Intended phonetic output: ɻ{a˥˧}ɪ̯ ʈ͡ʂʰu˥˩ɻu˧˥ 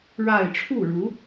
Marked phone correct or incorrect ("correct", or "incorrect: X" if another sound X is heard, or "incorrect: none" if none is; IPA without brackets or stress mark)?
correct